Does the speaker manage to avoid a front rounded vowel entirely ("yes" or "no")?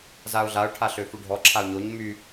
no